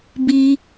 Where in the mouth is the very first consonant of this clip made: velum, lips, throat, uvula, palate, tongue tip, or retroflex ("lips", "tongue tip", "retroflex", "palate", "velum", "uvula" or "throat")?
lips